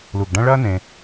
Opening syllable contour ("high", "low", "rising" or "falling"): low